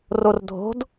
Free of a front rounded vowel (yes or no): yes